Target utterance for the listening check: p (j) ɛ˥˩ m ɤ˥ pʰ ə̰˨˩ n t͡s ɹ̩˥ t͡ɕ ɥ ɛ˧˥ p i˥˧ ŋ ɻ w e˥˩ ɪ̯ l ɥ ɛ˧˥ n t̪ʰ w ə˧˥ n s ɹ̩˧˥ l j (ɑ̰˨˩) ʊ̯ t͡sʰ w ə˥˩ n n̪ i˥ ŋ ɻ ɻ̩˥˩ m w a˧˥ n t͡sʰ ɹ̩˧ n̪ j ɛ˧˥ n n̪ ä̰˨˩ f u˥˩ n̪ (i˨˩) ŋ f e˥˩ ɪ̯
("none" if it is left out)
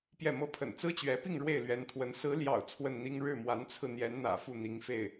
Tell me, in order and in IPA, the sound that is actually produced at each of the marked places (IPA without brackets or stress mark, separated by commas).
j, ɑ̰˨˩, i˧˥